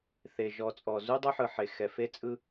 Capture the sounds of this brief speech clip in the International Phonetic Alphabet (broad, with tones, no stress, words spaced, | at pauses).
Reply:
θe˨ ʒɔ˨t͡sʼɔ˨ zu˦dˤo˦ħɯ˨ħe˨ xɛ˨fe˦ t͡sʼɯ˦